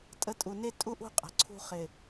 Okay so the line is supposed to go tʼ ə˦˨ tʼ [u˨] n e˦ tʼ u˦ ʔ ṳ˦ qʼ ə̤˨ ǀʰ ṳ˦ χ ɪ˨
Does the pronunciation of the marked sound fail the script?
no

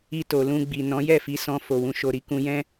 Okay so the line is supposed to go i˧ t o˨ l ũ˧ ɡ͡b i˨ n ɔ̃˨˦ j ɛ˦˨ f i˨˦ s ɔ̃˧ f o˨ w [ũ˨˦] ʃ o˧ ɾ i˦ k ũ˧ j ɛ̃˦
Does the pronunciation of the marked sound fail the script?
no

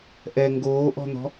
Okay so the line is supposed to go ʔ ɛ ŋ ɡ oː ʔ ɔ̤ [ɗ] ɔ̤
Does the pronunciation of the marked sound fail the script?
yes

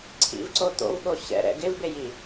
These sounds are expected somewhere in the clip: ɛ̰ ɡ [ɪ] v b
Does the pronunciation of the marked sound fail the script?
no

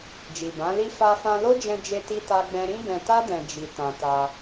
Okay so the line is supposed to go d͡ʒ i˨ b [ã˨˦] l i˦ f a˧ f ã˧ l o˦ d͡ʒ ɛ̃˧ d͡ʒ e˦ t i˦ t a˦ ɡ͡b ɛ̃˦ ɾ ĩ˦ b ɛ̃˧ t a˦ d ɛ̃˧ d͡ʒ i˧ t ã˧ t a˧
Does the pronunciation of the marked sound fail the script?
no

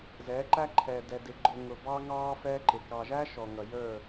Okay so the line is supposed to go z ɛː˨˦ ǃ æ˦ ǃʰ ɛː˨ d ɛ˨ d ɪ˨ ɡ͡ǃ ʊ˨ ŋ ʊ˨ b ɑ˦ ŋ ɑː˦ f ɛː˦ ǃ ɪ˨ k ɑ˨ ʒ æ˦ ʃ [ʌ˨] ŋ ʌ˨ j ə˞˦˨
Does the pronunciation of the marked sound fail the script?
yes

